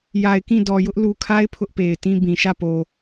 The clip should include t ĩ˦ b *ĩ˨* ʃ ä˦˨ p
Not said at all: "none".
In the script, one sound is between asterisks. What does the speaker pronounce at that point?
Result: ĩ˨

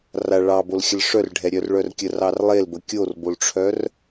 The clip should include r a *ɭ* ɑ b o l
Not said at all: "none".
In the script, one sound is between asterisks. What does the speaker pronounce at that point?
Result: ɭ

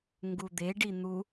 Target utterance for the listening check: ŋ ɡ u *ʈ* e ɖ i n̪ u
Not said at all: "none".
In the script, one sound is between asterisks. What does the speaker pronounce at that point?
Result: d̪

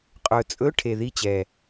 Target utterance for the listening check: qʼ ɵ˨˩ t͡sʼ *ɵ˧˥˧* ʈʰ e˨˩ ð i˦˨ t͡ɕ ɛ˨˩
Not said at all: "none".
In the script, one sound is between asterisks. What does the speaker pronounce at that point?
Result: ɵ˧˥˧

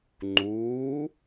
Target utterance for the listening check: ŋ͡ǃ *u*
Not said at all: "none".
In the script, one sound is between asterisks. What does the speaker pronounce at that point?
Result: uː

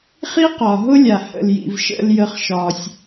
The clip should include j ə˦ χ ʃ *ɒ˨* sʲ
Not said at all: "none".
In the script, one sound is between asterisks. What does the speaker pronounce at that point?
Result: ɒ˦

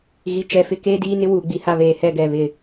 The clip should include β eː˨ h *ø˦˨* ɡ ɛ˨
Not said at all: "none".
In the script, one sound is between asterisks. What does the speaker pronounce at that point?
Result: ɛ˦˨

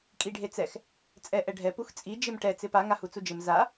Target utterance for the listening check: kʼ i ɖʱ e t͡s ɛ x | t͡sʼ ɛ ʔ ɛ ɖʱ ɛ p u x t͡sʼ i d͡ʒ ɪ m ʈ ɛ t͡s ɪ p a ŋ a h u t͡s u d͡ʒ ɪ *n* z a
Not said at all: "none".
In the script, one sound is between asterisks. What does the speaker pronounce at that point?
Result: m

